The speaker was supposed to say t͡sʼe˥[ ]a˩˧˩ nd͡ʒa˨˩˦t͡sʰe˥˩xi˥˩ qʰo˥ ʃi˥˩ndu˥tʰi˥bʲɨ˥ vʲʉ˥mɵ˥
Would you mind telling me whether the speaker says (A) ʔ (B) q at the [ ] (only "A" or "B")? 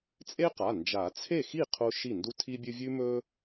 B